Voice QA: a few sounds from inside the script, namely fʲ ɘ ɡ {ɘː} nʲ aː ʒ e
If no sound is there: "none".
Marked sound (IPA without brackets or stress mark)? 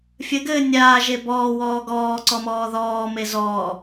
ɘː